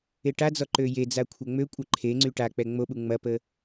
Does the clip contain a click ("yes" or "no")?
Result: yes